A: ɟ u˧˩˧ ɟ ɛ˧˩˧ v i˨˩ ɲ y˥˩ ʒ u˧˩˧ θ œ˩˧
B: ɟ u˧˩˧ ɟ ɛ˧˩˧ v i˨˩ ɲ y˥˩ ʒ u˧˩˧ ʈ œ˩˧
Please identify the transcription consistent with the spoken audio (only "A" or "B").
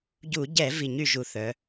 A